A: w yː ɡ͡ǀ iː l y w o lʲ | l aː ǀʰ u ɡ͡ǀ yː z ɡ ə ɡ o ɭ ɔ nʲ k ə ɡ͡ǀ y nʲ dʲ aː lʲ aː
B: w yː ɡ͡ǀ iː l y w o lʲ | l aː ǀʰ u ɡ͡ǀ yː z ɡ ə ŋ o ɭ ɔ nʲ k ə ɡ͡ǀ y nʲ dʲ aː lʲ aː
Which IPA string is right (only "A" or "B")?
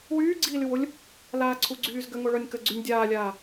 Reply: B